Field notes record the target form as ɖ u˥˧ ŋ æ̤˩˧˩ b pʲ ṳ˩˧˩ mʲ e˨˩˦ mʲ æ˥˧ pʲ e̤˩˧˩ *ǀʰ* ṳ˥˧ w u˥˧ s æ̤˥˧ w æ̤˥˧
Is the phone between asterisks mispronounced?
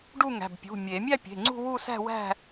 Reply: yes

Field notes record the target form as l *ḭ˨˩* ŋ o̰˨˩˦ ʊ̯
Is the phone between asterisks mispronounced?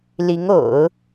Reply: yes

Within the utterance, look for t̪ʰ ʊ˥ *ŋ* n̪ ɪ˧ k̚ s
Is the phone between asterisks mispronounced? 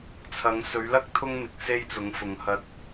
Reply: no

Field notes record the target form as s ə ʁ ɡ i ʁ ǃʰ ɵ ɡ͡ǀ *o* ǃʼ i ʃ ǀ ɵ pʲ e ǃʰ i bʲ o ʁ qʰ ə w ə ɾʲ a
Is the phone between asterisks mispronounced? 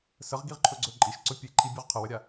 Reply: yes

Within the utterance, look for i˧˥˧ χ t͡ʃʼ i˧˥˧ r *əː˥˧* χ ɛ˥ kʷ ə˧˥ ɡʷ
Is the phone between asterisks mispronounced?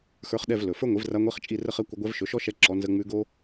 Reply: yes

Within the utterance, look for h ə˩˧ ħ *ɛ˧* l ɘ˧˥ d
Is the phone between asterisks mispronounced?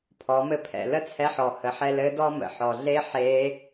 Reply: no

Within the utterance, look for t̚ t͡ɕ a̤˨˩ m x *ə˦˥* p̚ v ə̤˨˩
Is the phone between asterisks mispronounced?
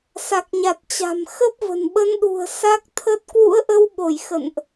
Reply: no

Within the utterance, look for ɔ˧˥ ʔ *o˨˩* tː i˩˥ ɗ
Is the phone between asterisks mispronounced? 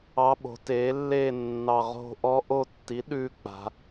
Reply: yes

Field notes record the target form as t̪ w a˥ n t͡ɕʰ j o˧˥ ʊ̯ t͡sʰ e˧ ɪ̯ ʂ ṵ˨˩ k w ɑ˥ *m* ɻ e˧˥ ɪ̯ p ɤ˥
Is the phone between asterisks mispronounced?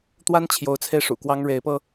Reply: yes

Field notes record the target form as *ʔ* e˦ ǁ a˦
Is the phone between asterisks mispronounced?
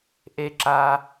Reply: no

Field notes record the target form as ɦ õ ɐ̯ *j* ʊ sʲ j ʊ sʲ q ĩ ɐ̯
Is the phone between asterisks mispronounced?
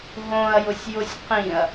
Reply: no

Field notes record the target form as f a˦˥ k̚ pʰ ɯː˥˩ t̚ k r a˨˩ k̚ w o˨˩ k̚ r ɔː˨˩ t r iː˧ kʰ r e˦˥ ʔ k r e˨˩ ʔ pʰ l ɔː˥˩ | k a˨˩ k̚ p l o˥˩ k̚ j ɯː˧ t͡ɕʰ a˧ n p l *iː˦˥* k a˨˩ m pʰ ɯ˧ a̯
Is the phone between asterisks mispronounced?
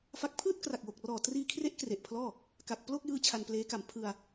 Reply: yes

